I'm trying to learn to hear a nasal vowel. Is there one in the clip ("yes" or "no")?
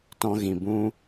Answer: yes